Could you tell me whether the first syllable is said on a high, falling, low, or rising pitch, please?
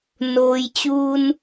low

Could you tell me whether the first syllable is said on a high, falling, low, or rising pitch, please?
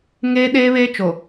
high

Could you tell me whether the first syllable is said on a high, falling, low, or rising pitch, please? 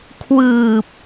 low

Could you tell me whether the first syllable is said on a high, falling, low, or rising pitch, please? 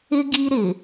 high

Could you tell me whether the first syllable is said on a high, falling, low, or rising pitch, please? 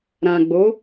low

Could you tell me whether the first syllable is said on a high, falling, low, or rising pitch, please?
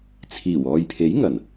low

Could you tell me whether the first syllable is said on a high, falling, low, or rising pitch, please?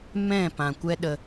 falling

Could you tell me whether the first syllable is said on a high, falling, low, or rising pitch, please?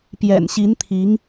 low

